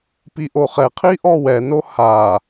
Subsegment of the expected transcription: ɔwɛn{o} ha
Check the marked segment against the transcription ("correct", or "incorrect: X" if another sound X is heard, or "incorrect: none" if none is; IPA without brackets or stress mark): correct